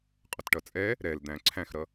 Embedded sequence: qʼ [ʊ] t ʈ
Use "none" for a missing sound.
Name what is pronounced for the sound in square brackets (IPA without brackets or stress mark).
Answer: ʊ